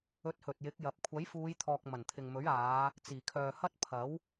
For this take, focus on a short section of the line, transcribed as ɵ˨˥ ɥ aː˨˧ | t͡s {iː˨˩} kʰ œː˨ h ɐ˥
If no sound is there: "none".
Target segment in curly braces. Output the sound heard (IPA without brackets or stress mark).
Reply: iː˨˩